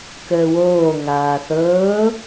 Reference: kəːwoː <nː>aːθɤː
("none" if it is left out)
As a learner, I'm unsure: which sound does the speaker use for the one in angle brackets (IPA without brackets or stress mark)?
ŋ